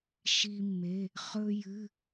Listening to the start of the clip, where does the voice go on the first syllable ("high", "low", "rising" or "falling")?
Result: high